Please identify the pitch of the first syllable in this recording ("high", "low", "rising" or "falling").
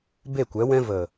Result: falling